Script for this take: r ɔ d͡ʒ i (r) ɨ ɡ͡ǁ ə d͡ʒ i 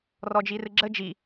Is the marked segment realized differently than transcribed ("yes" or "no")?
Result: no